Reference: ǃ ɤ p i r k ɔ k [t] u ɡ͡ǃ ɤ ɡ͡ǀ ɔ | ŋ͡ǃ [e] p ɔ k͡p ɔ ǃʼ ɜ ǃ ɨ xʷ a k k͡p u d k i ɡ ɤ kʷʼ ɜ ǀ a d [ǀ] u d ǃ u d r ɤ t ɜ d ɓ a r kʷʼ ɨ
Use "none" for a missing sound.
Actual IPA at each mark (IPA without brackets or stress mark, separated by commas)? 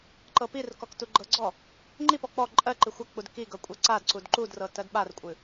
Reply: t, i, ǀ